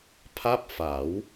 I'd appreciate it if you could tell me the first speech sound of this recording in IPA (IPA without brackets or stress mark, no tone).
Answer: pʰ